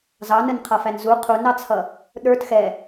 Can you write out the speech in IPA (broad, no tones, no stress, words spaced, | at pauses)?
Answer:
zɑnənqʰʌfæn zu qʰunɑt͡sʰʌ | ɗə˞t xɛ